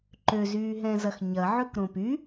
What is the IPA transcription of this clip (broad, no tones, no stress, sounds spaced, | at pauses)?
ǃ ø z yː ɦ ɛ̃ z ɐ x ɲ ɐ ʕ ø k ɾ õ p y